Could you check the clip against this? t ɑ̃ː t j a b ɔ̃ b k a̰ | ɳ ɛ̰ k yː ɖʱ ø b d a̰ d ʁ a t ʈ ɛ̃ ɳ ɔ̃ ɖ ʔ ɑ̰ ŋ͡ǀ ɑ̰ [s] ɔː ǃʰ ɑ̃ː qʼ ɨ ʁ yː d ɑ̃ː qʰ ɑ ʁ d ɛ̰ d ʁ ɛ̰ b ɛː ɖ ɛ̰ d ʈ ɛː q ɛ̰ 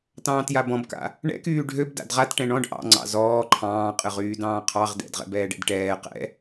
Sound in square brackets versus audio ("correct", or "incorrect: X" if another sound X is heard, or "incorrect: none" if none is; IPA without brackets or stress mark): incorrect: z